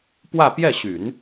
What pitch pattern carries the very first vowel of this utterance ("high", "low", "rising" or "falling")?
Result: falling